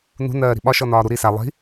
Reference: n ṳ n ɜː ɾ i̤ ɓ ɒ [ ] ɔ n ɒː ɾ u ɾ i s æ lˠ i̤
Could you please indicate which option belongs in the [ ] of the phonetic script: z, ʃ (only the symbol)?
ʃ